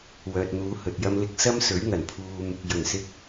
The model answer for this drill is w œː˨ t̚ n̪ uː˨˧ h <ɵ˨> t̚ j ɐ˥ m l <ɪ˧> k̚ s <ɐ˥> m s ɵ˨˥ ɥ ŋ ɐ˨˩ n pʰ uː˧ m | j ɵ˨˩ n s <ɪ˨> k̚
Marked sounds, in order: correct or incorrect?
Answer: correct, correct, correct, incorrect: ɪ˧

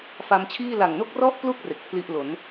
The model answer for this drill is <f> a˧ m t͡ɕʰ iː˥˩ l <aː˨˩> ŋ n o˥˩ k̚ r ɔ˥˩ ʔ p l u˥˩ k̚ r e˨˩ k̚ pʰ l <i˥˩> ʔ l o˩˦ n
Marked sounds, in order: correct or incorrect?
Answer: correct, incorrect: a˨˩, correct

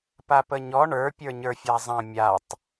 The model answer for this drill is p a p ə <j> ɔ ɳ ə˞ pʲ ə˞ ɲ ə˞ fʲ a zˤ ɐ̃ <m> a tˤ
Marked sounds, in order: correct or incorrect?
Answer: incorrect: ɲ, incorrect: mʲ

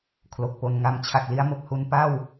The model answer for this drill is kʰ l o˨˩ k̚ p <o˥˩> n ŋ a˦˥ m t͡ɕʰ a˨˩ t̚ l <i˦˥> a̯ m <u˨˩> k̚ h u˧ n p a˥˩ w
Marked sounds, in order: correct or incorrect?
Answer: incorrect: o˧, correct, incorrect: o˨˩

